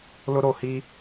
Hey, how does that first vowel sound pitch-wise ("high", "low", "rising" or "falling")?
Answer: high